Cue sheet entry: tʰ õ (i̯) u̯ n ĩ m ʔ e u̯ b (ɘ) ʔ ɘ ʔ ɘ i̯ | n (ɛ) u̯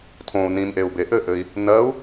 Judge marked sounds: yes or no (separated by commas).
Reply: no, no, no